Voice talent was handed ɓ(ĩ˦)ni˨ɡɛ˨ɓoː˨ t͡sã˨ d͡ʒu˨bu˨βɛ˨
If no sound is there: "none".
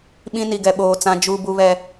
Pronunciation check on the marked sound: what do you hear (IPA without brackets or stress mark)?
ĩ˦